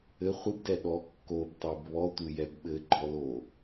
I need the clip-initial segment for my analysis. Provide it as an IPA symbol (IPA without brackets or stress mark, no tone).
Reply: ɘ